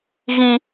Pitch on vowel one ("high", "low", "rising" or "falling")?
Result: high